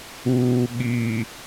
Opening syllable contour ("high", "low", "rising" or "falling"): low